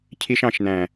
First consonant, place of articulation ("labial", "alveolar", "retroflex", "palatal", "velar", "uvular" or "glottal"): palatal